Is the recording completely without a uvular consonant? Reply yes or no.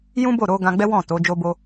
yes